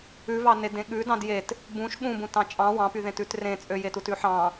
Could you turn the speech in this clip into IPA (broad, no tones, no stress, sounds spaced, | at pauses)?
ʉ v ɑ n e d ẽ ɠ ʉ d ɑ̃ d j e t | b ũ ʃ ɠ ũ b ũ t ɑ̃ t͡ʃʼ ɑ̃ w ɑ̃ p y ð ẽ t ʉ t r ẽ t͡sʼ ø j e t u t ʉ ħ ɑ̃